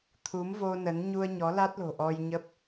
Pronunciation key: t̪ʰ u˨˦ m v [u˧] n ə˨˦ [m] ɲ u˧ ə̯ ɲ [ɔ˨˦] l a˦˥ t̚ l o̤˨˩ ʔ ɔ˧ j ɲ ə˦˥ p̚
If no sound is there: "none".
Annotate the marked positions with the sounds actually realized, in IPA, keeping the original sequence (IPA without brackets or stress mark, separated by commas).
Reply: o˧, n, ɔ˨˦